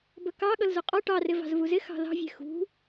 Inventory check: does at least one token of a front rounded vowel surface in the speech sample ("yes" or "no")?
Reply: no